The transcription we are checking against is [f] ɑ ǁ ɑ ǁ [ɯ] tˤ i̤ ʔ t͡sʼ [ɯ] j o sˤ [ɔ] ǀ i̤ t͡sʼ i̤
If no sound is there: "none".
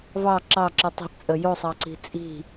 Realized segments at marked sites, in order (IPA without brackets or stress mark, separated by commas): v, ɯ, ə, ɑ